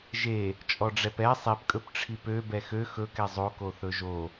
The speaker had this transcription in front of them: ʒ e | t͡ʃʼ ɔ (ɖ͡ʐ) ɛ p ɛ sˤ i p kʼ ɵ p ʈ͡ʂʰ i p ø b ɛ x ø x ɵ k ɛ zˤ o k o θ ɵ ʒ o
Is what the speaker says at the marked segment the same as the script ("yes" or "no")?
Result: yes